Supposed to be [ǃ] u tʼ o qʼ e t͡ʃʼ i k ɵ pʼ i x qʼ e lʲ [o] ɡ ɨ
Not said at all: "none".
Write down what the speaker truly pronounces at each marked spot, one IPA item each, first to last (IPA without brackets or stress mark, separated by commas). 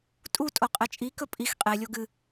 tʼ, o